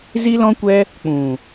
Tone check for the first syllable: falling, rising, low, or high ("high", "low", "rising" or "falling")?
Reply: high